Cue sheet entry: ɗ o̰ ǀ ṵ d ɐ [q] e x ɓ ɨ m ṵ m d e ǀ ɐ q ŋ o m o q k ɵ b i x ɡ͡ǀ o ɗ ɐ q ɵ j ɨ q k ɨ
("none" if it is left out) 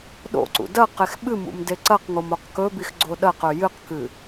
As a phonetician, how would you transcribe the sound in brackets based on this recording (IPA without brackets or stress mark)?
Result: q